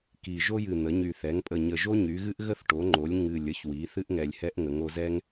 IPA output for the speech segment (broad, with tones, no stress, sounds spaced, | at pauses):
k i˨˩ ʒ o˦ j ɨ˨˩ n̪ ə˩˧ ɲ y˨˩ θ ɛ˩˧ ŋ pʼ ə˨˩ ɲ ə˨˩ ʒ o˦ ɲ y˩˧ ɣ ɨ˦ ʔ ɣ ə˦ θ ʈ o˩˧ ŋ͡ǃ o˩˧ lʲ ŋ ɨ˨˩ lʲ ə˦ ç w i˩˧ θ ɨ˦ ʔ ŋ ɛ˨˩ lʲ h ɛ˦ ʔ ŋ ə˩˧ ŋ o˩˧ z ɛ˦ ŋ